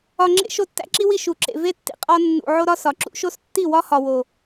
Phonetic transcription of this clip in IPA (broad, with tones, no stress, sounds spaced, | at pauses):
ɒ˧ ŋ͡ǁ ḛ˦ ʃ o˦ tː æ̰˦ ǁ i˦ w i˦˨ ʃ u˨ ǁ ḛ˨ v e˦ tː ḭ˨ qʼ ɒ˦ nː ṵ˧ ʕ o˦ ɾ ɒ˦ s ɒ˨ ǁ ṵ˦ ʃ o˧ s tː i˦˨ w ɒ˦ h ɒ˨ w o˨